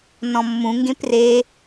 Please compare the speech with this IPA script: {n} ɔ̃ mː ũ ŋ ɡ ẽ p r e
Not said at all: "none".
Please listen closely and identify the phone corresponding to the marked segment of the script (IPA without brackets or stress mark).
n